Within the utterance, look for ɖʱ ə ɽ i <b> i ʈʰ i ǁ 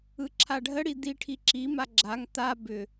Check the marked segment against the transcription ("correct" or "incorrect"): incorrect